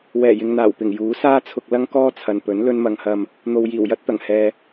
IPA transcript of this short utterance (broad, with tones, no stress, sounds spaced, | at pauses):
w ɛː˨˩ j ɪ˨ ŋ n̪ aː˨˩ w p ɪ˨˩ ŋ j uː˨˥ s aː˥ t͡sʰ ʊ˧ k̚ l ɐ˥ ŋ k ɔː˥ t͡sʰ ɐ˨ n p ɵ˨˥ n l ɵ˥ n m ɐ˧ ŋ h ɐ˧ m | n̪ o˨ w j iː˨˩ w j ɐ˥ t̚ t̪ ɐ˨˩ ŋ h ɛː˨